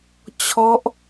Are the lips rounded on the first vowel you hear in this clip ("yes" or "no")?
yes